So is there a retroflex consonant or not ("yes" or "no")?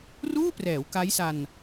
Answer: no